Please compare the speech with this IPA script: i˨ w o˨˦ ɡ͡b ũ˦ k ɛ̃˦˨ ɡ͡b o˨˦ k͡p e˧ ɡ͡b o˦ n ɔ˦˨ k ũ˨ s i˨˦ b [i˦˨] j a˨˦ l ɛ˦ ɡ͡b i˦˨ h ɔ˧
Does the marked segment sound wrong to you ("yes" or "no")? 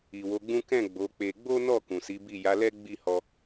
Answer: no